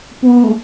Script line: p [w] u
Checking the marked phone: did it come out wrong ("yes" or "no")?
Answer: no